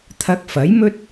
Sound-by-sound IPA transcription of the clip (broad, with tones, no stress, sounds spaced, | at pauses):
t̪ʰ ɐ˧ k̚ f ɐ˨˥ j m ɵ˥ t̚